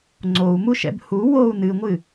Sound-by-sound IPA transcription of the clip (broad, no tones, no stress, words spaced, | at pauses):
ŋ͡ǀou̯muʃɛ̰b hu wou̯ nɨŋʷɨ